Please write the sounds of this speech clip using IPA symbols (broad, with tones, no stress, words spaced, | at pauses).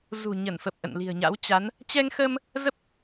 zṳ˨˩ɲə˧˩nfə˨˩p̚ ʔə̰˧˨nli̤˨˩ə̯ɲa̰˧˥w t͡ɕa˨˦n | t͡ɕɛ˧ŋxə˧m | zə˦˥p̚